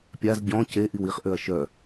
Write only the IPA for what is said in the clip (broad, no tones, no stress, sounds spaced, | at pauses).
pʲ a z ɟ ɔ̃ c e ʔ i w i χ ʔ ø ɐ̯ ʃ œ